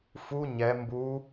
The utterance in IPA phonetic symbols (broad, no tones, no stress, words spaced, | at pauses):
fu ɲɛ mbu